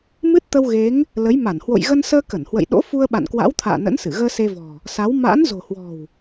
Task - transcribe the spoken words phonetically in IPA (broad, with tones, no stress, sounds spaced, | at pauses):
m ɨ˦˥ t̚ t̪ ə˧ w ɣ e˨˦ ŋ | l ə˨˦ j m a˧˩ n h w o̰˧˨ j ɣ ə˧ n s əː˧ k ə˧˩ n h w ə̰˧˨ j ɗ o̰˧˥ f u˧ ə̯ ɓ a̰˧˨ n k w a̰˧˥ w t̪ʰ a̰ː˧˨ n ə̰˧˥ n s ɨ˧˩ ɣ əː˧ s e˧ v ɔ̤˨˩ | s a˨˦ w m a̰ː˧˥ n z o̤˨˩ h w ɔ̤˨˩ w